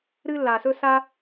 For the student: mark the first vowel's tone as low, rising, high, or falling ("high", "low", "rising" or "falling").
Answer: high